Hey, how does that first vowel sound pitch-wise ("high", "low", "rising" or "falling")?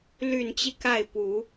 low